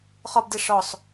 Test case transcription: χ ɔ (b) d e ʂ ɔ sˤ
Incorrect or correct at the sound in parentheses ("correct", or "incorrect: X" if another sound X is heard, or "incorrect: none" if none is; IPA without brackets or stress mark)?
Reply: correct